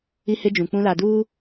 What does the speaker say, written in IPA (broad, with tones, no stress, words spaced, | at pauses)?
i˦hɪ˦d͡ʒũ˨k͡pũ˦ la˨duː˦